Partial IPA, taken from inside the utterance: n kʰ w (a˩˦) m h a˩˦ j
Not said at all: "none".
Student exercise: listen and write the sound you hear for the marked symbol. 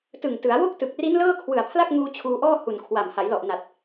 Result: a˨˩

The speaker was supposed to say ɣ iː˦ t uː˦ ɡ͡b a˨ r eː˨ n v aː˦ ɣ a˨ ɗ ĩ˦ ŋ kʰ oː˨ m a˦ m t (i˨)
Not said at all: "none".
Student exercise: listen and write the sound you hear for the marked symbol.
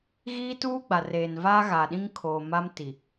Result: i˨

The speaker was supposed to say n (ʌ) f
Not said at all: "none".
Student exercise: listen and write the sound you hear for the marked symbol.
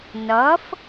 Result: ʌ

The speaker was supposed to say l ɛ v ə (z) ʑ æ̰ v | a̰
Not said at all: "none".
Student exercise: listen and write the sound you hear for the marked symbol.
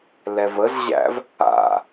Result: z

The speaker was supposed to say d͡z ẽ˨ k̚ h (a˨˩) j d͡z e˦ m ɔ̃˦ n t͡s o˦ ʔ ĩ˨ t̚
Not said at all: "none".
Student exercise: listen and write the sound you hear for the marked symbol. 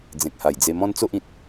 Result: a˨˩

